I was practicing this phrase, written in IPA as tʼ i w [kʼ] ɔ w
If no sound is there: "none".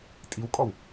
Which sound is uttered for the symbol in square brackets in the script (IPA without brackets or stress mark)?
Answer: kʼ